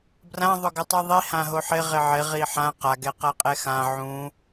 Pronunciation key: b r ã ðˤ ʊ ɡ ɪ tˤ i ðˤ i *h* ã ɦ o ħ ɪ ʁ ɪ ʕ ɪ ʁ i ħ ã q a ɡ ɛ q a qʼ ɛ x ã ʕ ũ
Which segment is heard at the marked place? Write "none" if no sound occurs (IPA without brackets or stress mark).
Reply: h